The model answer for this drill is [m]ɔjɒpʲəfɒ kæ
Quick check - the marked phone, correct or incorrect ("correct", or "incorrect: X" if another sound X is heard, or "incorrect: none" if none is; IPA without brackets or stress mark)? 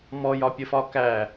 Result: correct